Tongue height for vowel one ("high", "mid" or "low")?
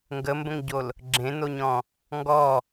mid